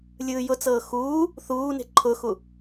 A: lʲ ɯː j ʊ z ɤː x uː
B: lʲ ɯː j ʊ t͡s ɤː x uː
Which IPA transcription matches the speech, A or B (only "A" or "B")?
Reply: B